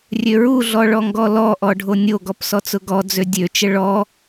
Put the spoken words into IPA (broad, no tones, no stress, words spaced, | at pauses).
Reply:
rʲøɹuɮɔ ɭɔŋɡɔlɔʔɔ ɖʱonʲoɡɔp sɔt͡sʊɡɔd͡zø dʲøt͡ʃə ɭɔ